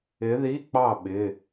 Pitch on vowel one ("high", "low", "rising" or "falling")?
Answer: rising